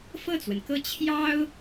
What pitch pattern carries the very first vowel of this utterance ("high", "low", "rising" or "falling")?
falling